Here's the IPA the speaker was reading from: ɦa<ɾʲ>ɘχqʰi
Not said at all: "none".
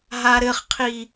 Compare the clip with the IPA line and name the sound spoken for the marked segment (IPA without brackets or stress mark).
ɾ